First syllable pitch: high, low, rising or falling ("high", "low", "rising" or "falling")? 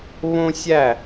high